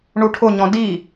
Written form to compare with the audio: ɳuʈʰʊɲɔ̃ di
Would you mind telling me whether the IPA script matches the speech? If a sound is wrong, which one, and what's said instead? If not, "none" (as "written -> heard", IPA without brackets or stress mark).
none